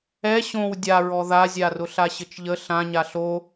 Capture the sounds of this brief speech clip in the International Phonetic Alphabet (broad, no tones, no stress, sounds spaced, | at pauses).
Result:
ɛ ɕ õ w dʲ a ɹ ɔ ð a zʲ a r ʊ ɬ a ɕ ɘ t͡ʃ ʎ ə ɬ ã ɲ a ɬ o